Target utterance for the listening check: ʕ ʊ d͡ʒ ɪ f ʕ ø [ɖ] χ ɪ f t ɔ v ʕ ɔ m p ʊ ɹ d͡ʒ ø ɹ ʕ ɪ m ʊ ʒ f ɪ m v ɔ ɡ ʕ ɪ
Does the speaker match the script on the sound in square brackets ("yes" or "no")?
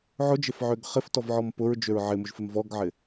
no